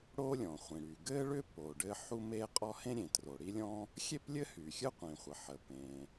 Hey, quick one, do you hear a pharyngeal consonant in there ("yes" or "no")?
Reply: yes